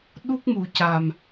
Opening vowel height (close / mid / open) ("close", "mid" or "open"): close